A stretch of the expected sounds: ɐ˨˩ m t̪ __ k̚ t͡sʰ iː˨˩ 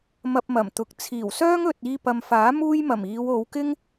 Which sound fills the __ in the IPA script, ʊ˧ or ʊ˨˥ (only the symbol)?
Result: ʊ˨˥